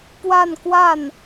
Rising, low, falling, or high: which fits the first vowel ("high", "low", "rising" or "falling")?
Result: falling